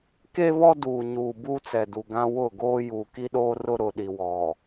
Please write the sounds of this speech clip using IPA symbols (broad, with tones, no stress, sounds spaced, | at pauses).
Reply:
k e˦ β ɔ˦ d uː˨ ɲ uː˨ b uː˦ t͡s ɛ˨ d u˨ ɡ ã˦ w ʊ˦˨ ɡ oː˦ j uː˨ k i˦ ɗ oː˦ r ʊ˦ ɾ ʊ˨ ɗ i˨ w ɔ˨